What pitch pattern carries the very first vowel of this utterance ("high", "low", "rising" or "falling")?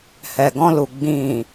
low